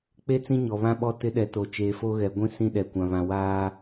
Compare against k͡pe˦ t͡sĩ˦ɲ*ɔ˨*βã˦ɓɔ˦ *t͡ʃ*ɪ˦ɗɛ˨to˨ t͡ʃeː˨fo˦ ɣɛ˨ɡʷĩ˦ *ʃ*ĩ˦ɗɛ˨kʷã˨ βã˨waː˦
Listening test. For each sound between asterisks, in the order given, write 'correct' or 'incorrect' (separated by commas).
correct, incorrect, incorrect